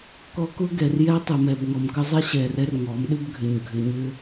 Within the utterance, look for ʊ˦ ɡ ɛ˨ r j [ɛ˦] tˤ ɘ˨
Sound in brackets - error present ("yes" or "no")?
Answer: no